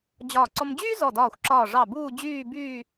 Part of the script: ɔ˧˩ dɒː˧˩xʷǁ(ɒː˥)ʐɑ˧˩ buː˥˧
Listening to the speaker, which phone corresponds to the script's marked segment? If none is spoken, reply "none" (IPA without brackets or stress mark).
ɒː˧˩